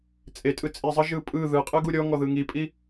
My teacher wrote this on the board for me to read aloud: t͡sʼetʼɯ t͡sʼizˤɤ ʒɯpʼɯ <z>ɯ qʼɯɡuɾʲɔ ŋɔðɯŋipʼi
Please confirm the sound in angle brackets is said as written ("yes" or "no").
no